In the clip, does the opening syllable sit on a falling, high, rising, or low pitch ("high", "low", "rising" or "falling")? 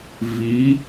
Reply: rising